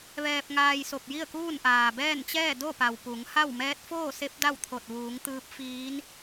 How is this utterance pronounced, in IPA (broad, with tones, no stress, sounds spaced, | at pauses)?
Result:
ʋ ɛː˧ p̚ ŋ aː˧ j s o˧˩ p̚ j i˥˨ ə̯ k uː˥˨ n ʔ aː˩ b ɛː˥˨ n t͡ɕ ɛː˥˨ d o˥˨ p a˩ w p u˩˧ ŋ h a˥˨ w m ɛː˧˥ t̚ f oː˥˨ s e˧˥ p̚ d a˥˨ w t̪ʰ o˧˩ t̚ ʋ uː˩˧ ŋ t̪ ɯː˧˥ p̚ f iː˧˥ n